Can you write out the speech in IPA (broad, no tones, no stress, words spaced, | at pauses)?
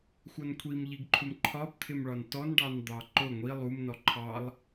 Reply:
xʷʌnkʷʰimʎiɡǃʰum ǃʰɒbt̪ʰɪmɭɒn tɔnɖɑn d̪ɑǃʊ ŋʷi lˠumnɔ ǃʰɑlˠ